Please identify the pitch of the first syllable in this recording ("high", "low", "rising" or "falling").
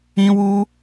high